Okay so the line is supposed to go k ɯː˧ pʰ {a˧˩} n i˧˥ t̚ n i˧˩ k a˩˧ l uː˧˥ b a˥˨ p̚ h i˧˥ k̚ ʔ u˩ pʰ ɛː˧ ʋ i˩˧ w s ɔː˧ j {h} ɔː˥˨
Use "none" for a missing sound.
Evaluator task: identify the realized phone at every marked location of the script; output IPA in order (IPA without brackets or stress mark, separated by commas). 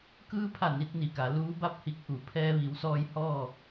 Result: a˧˩, h